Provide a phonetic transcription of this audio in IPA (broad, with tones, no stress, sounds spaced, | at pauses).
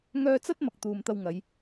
ŋ œː˧ t͡s ɐ˥ t̚ m ɐ˨ k̚ t̪ uː˨ m t̪ ɐ˧ w ŋ ɐ˨˧ j